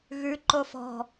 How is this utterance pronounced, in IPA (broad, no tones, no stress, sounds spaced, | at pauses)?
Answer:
ɣ ʉ ǃ o f ɔ̤